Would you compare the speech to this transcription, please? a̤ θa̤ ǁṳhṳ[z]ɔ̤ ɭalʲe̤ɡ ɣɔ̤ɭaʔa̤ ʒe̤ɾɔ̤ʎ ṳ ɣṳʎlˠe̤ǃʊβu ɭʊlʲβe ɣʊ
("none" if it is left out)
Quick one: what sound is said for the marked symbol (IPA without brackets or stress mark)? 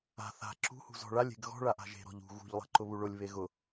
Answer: z